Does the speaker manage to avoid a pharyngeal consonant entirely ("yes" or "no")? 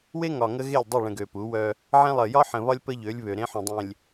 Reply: no